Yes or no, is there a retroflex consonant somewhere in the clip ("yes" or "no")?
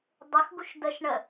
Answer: yes